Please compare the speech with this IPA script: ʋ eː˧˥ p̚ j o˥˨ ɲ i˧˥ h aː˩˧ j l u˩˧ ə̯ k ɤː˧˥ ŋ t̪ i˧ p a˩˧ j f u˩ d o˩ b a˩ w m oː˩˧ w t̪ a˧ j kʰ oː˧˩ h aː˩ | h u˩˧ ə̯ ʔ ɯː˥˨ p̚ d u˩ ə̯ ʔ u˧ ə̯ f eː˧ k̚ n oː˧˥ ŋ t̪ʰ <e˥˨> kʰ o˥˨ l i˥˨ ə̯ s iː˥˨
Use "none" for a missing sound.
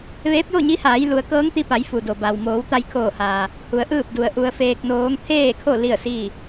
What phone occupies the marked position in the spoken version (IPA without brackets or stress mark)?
eː˥˨